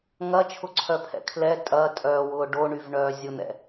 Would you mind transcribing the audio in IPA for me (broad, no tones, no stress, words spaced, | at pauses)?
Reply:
ŋɐt͡ʃʰʊǀʰœpʰɛ̰ kʰlɛ tʼɐː tʼœwʊː ɖoɳyvɳœː zʲʊn̪ɛ̰